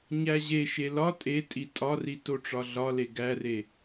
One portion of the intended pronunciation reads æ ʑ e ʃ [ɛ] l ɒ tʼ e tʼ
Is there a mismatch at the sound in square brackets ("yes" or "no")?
yes